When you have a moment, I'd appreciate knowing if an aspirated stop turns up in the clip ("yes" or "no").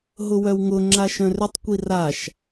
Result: no